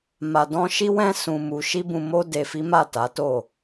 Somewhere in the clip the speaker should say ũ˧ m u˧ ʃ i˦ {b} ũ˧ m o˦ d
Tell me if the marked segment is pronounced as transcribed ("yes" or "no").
yes